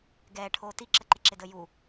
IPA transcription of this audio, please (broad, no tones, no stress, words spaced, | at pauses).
ɡɛːʈʰoː tiǁəǃɪǁɪ dəju